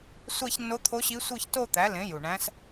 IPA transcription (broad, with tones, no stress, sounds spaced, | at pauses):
sʷ æ˥˧ ç nː o˧˥ t̪ʰ o˧˥ ɕ i˧˥ sʷ ɯ˥˧ ç t o˥˧ t̪ æ˩˥ l ẽ˩˥ j u˨˩ ɳ æ̃˧˥ s